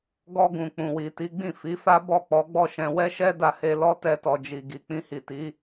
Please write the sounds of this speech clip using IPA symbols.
ɡ ɔ˧ ɡ ũ˨ k͡p ũ˨ w i˨ t i˨˦ ɡ͡b ĩ˦˨ f i˨˦ f a˦ b ɔ˦˨ k͡p ɔ˨˦ ɡ͡b ɔ˦˨ ʃ ɛ̃˧ w ɛ˦ ʃ ɛ˦ d a˧ h e˧ l ɔ˦ t ɛ˧ t ɔ˨ d͡ʒ i˨ ɡ i˨ k͡p ĩ˧ h i˨ t i˨˦

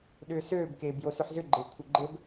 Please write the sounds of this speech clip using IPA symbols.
ɗ ʏː s øː b k eː b j o s ʏ ħ z ʏ ɡ͡ǃ e kʷʰ ɘ ɡ͡ǃ ɘ b

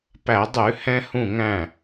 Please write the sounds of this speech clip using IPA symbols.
p æ˧˩˧ dˤ ʉ˧˩˧ h ɛ̃˧ h ũ˧˩ ŋ æ̃˧˩

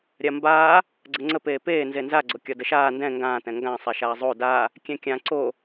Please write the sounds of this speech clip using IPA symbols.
ɾʲ a m b aː | ɡ͡ǀ ə ŋ͡ǀ ə p eː p eː n z e n z a ɡ͡ǀ o kʲ ɒ d ə ʃ aː n d ɛ̃ ŋ ɡ ãː t ɛ̃ ŋ ɡ ã sˤ ɛ ʃ aː zˤ o d a | kʲ ɛ̃ kʲ ã ǀ o

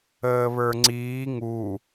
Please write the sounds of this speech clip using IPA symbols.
əː β ə˞ ŋ͡ǀ iː ŋ u

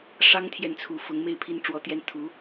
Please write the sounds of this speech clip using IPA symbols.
ʂ ɑ˥ ŋ t̪ʰ j ɛ˥˩ n t͡sʰ u˧˥ f ʊ˧˥ ŋ m e˥˧ ɪ̯ pʰ i˥˩ n ʈ͡ʂ w ɔ˧˥ t̪ j ɛ˥ n t̪ʰ u˧˥

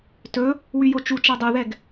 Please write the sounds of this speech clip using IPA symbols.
t ɵ | w y j o t͡ʃ u t͡ʃ a dˤ u ð ɛ ɡ

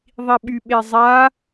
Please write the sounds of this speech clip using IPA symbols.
ðˤ i ɓ y ɓ e zˤ a

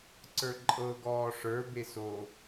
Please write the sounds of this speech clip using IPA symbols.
ǀ ə˞ ǃʼ ɤ ɡ ɔː ʂ ə˞ b e s o

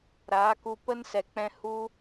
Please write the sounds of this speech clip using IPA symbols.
ɾ aː˨˦ k u˧ p ə˦ n s ɛ˨ k͡p ɛ̃˧ h u˦

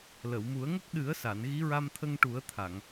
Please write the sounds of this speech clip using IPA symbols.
l ə˨˩˨ w m u˨˩˦ ə̯ ŋ ə˦˥ k̚ ɗ ɨ˨˩˦ ə̯ s a˨˩˨ n ɣ i˧˥ ɹ a˧ m t̪ʰ ə˧ ŋ ʈ u˨˩˦ ə̯ t̪ʰ a˨˩˨ ŋ

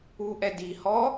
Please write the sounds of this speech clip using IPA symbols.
u ʔ ɛ d i h ɔ

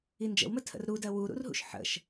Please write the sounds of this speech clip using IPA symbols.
i n d͡ʒ ə̰ w m ə tʰ ə̰ r ɾ u d ɜ w u ɾ ṵ r ɦ ṵ ʃ ħ ə̰ ʃ

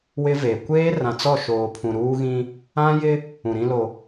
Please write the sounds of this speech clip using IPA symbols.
w ɪ˦ v e˨ kʷ eː˦ r ã˨ t͡s ɔ˦˨ ʃ oː˨ pʰ ũ˨ ɾ uː˦ ɣ ĩ˦ | ã˦ j ɪ˦ | ũ˨ ɾ ĩ˦ l o˨

